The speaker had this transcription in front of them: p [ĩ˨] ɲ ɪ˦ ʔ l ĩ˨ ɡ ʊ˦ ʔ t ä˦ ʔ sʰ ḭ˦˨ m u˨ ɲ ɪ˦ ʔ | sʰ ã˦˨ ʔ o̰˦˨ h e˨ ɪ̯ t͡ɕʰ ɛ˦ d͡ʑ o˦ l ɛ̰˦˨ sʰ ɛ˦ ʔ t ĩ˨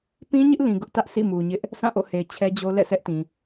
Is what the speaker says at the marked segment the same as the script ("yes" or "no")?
no